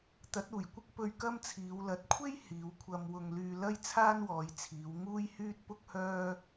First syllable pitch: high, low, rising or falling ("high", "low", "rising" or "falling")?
rising